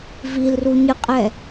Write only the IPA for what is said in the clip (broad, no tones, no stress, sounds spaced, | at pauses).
v i l r u ɲ ɨ qʼ ɛ